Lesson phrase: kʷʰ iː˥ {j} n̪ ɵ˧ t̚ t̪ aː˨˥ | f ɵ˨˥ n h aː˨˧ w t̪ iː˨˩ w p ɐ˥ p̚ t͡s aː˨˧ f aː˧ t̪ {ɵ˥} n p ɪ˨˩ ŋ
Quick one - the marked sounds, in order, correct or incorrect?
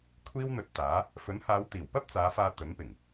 incorrect, incorrect

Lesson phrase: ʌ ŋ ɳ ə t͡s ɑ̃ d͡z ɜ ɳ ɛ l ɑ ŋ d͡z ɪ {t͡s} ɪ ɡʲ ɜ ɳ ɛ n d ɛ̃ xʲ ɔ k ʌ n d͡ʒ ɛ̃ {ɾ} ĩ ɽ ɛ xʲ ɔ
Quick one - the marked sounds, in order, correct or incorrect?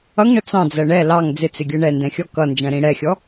correct, correct

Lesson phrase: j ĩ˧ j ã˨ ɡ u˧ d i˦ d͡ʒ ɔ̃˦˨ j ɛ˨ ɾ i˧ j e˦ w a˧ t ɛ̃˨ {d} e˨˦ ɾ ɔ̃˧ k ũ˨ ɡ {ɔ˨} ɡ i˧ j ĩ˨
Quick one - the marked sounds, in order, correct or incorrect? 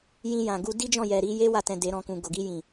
correct, incorrect

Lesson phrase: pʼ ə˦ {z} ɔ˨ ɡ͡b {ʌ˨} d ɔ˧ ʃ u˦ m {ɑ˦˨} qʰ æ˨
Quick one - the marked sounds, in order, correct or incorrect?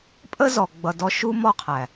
correct, correct, incorrect

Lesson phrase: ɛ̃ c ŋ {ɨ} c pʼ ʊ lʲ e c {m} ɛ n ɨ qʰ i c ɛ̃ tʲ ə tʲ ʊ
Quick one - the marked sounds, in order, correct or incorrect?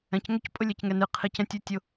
incorrect, incorrect

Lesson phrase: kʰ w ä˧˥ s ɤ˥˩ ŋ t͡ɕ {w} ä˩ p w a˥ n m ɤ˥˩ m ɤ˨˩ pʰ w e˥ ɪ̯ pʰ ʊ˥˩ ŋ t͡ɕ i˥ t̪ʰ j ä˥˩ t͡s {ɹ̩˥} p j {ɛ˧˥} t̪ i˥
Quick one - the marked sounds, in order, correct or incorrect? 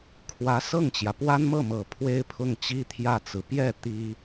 incorrect, incorrect, incorrect

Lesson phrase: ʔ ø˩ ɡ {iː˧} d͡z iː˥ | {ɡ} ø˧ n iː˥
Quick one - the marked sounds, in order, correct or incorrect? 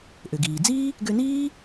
incorrect, correct

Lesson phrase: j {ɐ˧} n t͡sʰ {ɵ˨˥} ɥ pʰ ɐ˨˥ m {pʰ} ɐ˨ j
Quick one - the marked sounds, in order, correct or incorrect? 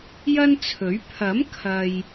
incorrect, correct, incorrect

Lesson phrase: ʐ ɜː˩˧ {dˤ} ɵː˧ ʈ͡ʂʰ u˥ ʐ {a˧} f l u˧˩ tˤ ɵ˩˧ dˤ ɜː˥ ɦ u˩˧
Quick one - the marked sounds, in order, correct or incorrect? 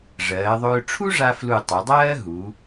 incorrect, correct

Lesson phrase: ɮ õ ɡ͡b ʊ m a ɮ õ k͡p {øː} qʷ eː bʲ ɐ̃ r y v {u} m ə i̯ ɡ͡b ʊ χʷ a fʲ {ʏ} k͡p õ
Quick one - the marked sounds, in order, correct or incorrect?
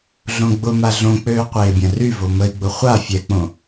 correct, incorrect, incorrect

